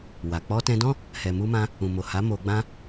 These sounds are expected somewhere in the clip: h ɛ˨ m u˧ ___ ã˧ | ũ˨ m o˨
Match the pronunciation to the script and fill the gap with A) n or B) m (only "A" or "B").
B